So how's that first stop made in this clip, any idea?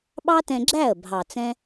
implosive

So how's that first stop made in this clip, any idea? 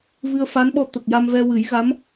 implosive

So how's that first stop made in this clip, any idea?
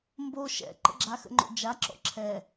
plain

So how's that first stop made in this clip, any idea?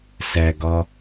plain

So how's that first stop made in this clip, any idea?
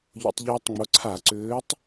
plain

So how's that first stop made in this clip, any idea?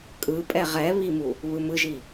ejective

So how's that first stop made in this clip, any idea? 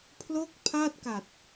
aspirated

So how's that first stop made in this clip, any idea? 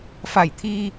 aspirated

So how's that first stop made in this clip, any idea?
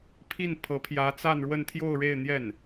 aspirated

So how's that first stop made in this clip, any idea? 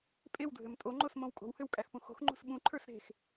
ejective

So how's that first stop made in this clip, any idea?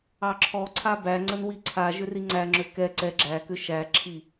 click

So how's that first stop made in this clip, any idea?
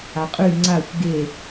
ejective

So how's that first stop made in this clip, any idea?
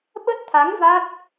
implosive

